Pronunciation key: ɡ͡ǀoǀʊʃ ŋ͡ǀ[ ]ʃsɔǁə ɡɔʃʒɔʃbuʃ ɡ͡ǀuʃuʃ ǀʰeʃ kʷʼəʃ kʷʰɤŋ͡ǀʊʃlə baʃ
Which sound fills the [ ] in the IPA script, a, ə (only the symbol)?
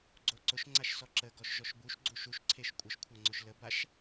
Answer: a